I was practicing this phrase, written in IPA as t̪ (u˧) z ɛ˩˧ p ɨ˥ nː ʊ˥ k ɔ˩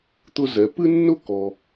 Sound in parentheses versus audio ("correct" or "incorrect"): incorrect